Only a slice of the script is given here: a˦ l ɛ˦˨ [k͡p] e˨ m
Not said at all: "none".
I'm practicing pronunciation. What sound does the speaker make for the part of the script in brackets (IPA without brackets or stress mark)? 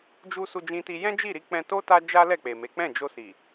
k͡p